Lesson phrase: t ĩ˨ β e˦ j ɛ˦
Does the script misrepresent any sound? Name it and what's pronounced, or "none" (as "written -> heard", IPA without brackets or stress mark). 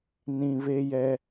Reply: t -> n